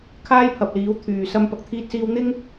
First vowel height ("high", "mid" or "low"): low